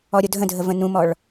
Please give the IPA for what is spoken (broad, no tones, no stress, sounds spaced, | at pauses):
ɔ ɾʲ o dʱ ə̃ dʱ ə v ə̃ n ũ m ɔ ɭ